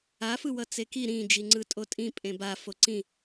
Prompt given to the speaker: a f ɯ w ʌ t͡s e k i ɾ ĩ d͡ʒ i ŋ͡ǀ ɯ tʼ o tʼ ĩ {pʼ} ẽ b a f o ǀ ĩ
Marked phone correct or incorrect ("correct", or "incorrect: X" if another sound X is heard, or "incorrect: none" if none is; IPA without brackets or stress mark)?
correct